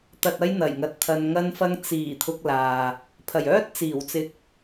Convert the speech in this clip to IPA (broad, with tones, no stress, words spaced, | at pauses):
t̪ɐ˨t̚ɐ˧j n̪ɐ˨˩jŋɐ˨˥t̚t̪ʰɐ˧n ŋɐ˧nfɐ˧ŋ t͡siː˨˩ t̪ʰʊ˧k̚laː˨ | pʰɐ˨˩jœː˥t̚ t͡siː˨˩wt͡sɪ˧k̚